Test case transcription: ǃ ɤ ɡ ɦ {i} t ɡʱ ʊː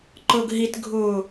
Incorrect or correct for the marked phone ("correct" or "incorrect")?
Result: correct